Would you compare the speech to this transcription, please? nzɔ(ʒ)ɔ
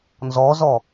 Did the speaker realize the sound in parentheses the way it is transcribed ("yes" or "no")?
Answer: no